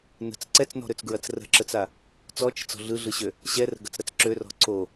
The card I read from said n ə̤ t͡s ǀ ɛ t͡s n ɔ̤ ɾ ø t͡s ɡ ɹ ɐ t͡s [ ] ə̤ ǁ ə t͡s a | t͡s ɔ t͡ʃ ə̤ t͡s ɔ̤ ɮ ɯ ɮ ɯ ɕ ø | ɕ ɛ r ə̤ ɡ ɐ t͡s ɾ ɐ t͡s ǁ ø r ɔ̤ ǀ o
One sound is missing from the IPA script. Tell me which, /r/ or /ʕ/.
r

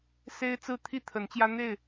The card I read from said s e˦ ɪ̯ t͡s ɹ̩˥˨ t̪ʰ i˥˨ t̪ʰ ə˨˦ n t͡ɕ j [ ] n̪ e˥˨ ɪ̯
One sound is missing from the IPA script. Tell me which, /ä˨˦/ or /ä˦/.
ä˦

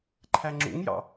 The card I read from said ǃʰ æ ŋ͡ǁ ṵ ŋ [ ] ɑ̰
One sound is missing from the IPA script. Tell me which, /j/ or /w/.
j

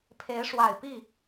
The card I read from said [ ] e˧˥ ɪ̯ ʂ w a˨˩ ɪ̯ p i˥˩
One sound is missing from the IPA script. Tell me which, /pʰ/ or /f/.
pʰ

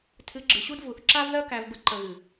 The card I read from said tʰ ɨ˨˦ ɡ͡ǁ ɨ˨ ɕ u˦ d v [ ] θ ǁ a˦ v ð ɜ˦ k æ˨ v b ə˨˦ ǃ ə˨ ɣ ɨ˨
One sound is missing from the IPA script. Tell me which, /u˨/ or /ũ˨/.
u˨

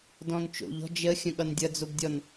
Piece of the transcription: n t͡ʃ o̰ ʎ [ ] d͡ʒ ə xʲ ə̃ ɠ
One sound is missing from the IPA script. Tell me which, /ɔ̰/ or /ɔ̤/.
ɔ̤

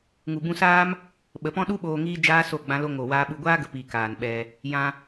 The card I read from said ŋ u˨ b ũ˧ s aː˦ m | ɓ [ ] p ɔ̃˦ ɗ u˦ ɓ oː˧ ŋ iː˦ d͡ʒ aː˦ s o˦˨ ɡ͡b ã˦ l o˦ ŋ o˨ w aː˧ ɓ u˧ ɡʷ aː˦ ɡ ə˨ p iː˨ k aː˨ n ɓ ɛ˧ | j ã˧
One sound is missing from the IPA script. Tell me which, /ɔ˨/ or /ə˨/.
ə˨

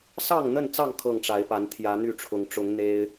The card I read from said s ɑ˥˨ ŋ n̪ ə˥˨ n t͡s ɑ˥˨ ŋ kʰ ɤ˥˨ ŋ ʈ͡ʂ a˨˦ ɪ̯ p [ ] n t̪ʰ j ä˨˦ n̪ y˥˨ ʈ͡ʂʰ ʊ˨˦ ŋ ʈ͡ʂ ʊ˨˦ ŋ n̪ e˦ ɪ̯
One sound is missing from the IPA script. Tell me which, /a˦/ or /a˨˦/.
a˨˦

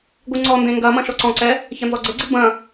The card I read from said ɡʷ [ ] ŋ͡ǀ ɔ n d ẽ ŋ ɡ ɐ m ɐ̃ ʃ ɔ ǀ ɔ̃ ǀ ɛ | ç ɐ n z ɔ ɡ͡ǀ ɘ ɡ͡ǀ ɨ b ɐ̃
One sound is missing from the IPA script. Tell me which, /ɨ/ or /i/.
ɨ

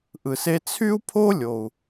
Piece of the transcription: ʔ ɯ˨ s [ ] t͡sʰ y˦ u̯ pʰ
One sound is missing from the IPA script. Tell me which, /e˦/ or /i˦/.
e˦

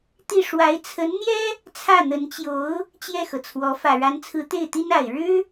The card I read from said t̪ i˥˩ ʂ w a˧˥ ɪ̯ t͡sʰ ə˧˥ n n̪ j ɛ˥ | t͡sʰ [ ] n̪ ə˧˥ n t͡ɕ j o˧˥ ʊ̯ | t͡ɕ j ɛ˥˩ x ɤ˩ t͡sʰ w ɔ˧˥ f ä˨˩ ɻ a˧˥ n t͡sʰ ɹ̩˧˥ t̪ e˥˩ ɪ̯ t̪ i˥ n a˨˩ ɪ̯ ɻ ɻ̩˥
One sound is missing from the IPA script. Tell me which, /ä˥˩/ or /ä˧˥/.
ä˥˩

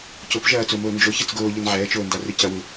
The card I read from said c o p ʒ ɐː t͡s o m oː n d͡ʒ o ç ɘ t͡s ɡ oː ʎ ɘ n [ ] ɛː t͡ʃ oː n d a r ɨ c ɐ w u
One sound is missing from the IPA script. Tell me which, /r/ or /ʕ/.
ʕ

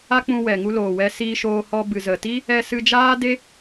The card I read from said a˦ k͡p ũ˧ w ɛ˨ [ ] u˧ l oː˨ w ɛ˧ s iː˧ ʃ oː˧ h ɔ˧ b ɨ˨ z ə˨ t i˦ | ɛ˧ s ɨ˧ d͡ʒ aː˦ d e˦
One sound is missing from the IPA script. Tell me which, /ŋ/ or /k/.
ŋ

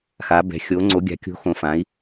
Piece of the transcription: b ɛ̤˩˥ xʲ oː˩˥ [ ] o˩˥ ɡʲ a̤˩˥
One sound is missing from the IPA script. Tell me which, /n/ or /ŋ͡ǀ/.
ŋ͡ǀ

